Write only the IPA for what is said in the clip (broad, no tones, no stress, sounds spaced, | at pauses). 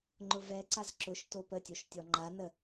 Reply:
ŋ͡ǃ ʊ v ɛ ǀ a z ǁ ʊ ʃ t o p ə tʲ o ʃ tʲ ɔ ŋ͡ǃ a n ə